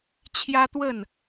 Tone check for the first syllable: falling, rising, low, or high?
high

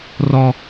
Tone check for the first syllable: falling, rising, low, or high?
high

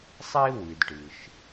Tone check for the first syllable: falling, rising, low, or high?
high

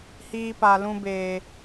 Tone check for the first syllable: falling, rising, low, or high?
high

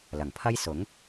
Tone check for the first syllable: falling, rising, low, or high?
low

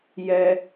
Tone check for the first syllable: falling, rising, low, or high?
high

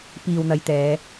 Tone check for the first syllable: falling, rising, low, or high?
low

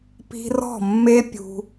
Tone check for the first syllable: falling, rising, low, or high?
high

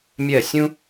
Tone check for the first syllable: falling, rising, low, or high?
falling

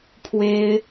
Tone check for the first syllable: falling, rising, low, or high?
high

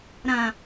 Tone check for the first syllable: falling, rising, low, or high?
low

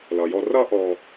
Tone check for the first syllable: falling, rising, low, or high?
low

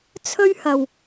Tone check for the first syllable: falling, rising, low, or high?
high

